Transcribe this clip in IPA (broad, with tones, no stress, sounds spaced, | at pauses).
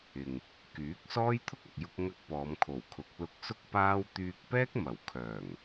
ɪ˨ ŋ | k yː˨˥ k̚ s ɔː˥ j t̪ʰ ʊ˥ k̚ ɐ˨ k̚ j ʊ˧ k̚ ŋ ɐ˧ k̚ p ɔː˨˧ m kʰ o˨˩ w kʰ ʊ˨˥ k̚ l ʊ˧ k̚ s ʊ˥ k̚ p aː˥ w t̪ yː˧ k̚ p ɛː˥ k̚ m ɐ˨˩ w kʰ œː˨˩ ŋ